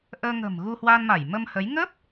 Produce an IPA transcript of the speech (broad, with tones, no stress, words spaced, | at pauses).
ʔəː˧ŋə̤˨˩m ɣu˧hwaː˧nma˧˩j mə˧mhə˨˦j ŋə˦˥p̚